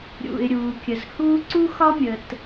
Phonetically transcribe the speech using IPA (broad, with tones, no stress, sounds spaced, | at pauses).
ɾʲ ṵ˩ ɪ̯ ɾʲ uː˩ kʲ ə˩ z h uː˥ ǀ u˥ x ɒ˥ mʲ ə˩ t